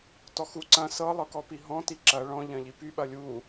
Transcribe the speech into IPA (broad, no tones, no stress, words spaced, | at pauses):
tɔxu ǀɐ̃ sɤ lˠɤkɔpiɦɔ̃ tiǁɐ ɭɔ̃ ʎɐ̃ʎipy ɓɐlʲu